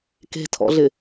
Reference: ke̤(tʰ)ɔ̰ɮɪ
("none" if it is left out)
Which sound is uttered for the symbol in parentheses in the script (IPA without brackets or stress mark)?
tʰ